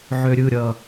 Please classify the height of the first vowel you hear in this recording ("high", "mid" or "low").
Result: mid